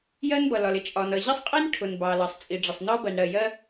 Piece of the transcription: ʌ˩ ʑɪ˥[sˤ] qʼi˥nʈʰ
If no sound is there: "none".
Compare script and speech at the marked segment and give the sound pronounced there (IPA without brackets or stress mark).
sˤ